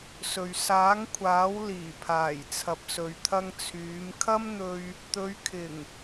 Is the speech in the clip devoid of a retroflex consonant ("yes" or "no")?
yes